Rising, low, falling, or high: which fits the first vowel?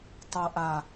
low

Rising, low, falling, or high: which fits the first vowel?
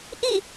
falling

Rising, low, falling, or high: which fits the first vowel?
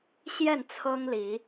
falling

